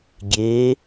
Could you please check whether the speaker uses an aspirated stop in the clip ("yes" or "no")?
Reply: no